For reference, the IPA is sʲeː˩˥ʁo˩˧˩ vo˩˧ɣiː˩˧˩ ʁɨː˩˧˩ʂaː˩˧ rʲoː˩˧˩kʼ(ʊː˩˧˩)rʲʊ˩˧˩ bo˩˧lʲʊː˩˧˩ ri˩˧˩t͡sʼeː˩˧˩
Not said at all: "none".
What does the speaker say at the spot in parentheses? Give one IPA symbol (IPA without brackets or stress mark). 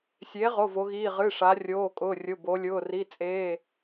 ʊː˩˧˩